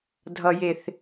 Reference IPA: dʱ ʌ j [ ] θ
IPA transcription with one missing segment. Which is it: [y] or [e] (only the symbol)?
e